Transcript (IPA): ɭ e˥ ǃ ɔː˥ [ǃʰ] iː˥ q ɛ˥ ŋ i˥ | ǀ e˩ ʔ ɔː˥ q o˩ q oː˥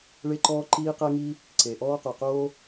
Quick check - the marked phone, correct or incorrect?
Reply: incorrect